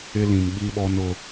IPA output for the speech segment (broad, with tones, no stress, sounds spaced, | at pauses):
ɪ˦ l ĩ˨ m ɓ i˦ ɓ ɔ˦ n ʊ˦